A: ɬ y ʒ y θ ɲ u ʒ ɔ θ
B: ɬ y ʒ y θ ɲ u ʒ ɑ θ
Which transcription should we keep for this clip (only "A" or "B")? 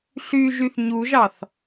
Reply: B